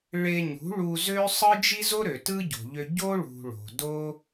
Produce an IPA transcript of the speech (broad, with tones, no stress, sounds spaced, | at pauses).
ɭ e˧ ɲ ṳ˨˦ ɭ u˧ z ø˦ sˤ ɯ˦ d͡ʒ i˦ z o˦ ɾ ø˨ t ɯ˦ ɟ o̤˨ ʎ ø˧ ɟ o˦ ɭ ṳ˨ ɭ o̤˨ d o˦